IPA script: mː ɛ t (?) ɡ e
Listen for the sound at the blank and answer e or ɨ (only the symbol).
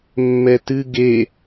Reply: ɨ